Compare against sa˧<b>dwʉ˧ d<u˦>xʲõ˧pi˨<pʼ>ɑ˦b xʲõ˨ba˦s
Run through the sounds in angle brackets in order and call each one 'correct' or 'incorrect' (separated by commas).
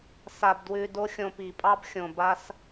correct, incorrect, correct